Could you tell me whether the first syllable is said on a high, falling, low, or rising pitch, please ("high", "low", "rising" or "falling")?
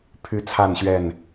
high